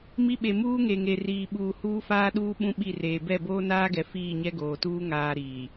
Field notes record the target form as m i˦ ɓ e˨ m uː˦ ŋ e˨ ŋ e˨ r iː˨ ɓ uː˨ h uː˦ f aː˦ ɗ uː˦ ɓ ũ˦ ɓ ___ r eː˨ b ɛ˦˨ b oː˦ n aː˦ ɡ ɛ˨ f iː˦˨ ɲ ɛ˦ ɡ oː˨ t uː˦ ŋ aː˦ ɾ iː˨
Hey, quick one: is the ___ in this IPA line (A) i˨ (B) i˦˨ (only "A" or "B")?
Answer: B